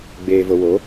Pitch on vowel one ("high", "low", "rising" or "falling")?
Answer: low